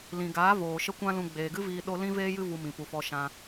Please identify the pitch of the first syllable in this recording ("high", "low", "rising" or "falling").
low